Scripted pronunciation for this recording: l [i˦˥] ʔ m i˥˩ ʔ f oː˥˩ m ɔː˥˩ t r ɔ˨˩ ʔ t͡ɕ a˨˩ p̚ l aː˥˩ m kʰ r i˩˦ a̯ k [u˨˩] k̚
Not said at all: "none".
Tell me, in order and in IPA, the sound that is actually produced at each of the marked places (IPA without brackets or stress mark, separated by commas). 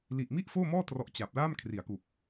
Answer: i˨˩, u˨˩